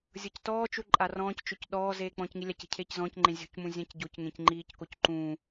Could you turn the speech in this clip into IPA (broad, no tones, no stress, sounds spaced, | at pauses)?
zʲ ɤ c t ɔː t͡ʃ u ǃʼ a r ɔ̃ː c t͡ʃ o c ɗ ɔː z eː k͡p ɔ̃ː c ŋ i lʲ a c e̤ cʰ eː c z ɔ̃ː c ŋ͡ǃ ẽ zʲ o̤ c m ũ zʲ ã c ɟ o c ŋ ẽ c ŋ͡ǃ iː c k o c ǃ ũː